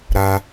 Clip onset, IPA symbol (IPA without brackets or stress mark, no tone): ɾ